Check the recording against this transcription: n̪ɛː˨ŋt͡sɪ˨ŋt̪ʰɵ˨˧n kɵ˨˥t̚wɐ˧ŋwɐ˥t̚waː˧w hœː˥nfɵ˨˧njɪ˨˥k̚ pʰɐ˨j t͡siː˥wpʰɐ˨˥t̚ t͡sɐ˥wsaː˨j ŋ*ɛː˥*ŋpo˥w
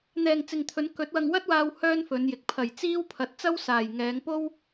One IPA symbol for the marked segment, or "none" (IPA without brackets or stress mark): ɛː˨˧